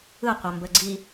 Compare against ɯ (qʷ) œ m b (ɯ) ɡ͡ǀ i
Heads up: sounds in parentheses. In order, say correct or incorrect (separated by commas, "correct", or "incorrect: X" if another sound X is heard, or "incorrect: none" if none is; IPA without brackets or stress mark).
correct, incorrect: ə